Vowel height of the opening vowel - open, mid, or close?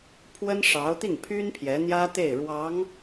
mid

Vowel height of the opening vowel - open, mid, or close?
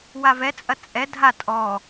open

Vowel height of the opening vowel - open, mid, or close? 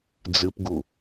close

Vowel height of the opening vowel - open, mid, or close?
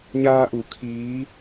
open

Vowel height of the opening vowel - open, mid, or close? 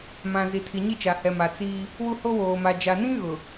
open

